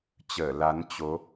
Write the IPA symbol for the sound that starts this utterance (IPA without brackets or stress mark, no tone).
t͡ɕ